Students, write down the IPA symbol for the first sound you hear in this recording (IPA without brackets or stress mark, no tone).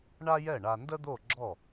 ɳ